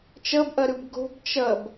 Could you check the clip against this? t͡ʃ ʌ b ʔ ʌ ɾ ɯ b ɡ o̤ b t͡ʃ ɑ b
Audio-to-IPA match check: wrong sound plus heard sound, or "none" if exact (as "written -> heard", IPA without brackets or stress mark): ɑ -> ʌ